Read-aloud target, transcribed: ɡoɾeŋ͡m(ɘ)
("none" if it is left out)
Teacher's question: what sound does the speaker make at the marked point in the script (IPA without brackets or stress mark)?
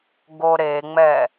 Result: ɛ